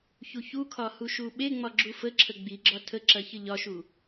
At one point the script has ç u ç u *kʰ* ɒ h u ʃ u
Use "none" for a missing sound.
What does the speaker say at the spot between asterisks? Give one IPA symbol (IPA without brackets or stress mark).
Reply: kʰ